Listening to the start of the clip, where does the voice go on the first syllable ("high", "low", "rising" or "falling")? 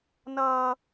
high